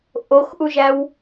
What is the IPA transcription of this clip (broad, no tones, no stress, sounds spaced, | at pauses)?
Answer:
ʔ o x ʔ u ʒ æ w